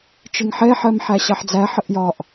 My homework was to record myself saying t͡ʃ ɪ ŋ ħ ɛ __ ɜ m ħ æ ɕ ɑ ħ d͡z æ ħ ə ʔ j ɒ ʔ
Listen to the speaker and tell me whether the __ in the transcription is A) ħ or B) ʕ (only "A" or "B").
A